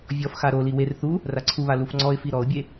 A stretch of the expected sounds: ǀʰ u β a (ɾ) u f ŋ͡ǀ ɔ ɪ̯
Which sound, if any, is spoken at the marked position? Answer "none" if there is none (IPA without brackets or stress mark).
l